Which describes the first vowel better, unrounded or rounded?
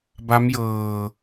unrounded